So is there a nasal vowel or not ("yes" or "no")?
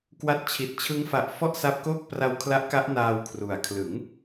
no